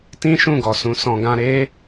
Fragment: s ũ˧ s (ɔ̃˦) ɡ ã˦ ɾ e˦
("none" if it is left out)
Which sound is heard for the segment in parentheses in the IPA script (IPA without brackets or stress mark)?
ɔ̃˧